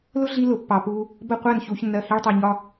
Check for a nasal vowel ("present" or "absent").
absent